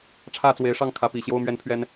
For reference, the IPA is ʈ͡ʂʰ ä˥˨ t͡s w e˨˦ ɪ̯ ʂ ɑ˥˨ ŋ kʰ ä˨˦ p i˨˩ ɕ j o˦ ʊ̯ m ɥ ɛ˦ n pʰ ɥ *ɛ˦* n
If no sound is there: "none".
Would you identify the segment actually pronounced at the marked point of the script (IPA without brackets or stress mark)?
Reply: ɛ˦